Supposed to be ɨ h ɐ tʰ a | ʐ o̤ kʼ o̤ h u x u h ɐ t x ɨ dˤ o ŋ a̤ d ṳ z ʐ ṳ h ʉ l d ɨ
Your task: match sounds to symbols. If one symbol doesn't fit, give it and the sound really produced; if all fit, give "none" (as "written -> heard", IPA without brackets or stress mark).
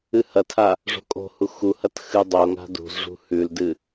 none